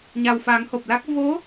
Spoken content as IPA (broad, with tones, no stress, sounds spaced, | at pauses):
ɲ a˨˩ w f a˨˩˦ ŋ h o˨˩ p̚ l a˦˥ k̚ v o˧˥